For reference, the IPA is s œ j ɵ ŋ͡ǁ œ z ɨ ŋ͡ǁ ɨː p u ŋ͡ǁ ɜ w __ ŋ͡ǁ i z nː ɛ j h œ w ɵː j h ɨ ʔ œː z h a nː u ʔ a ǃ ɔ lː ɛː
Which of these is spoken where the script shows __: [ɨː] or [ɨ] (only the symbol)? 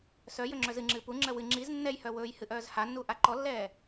ɨ